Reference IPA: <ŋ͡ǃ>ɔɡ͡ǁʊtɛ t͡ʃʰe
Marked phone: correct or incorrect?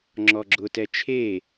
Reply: incorrect